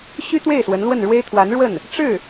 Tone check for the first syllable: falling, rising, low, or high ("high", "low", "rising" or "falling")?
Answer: high